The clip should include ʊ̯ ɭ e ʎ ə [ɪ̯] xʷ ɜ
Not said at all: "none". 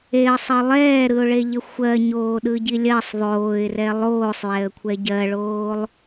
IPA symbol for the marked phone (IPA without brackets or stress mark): none